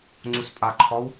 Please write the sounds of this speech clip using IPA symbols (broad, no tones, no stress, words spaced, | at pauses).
ŋ͡ǀuspʼaǃʰɔw